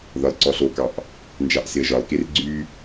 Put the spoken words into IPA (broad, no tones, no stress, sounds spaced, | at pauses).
ð ɒ l ǀ ɔ ɬ o k ɑ ʔ | n d͡ʒ ɑ ʔ s ɪ ə̯ ʒ ɒ l k e r ɡ͡ǀ y